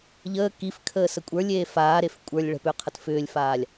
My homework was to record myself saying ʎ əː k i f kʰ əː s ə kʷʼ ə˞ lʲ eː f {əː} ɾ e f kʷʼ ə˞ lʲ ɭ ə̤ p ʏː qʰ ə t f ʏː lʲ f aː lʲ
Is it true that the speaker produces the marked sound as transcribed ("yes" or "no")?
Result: no